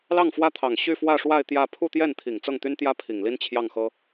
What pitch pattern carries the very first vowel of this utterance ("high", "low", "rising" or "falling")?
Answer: falling